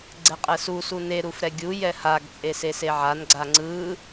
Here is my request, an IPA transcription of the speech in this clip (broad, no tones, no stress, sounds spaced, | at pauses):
ɡ͡ǀ ɛ qʼ ɛ s u s u n e ɾ u f ɾ ɛ ɡʲ u j ɛ h a ɡ t͡sʼ e s e s e ʕ a n ɡ͡ǀ a ŋ͡ǀ ɯ